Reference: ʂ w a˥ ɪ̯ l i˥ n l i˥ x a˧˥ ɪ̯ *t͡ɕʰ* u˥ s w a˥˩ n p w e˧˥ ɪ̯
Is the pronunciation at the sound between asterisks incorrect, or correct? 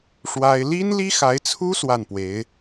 incorrect: t͡sʰ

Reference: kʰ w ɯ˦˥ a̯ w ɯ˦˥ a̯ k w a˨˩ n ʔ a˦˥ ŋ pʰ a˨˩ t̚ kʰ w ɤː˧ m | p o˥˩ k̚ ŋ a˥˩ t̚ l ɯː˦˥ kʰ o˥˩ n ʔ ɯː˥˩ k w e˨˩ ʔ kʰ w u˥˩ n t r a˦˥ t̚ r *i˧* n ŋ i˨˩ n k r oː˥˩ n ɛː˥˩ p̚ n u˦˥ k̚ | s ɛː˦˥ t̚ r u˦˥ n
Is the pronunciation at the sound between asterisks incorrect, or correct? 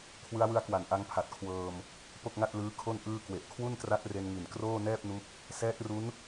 incorrect: e˧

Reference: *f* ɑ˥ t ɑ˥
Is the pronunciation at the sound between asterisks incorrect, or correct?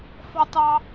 correct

